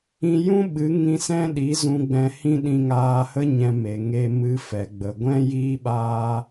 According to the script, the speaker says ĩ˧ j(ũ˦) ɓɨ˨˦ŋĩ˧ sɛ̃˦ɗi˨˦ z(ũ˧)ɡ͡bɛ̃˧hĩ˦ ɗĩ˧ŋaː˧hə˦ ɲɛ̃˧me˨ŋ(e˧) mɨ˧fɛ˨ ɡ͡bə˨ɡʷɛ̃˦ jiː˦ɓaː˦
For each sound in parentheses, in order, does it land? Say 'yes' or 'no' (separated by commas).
yes, yes, yes